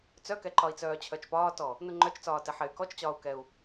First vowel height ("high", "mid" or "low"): mid